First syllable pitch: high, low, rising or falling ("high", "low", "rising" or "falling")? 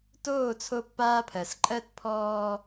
falling